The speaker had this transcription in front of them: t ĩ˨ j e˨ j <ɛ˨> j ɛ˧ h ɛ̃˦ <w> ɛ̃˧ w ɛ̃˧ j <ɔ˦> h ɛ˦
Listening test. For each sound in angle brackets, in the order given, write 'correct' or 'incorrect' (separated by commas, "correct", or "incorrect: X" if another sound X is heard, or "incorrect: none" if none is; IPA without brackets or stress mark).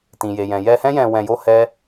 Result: incorrect: ɛ̃˨, incorrect: j, incorrect: o˦